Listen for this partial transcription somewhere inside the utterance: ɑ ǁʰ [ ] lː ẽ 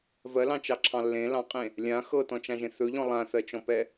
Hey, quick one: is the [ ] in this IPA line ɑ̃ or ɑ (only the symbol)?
ɑ̃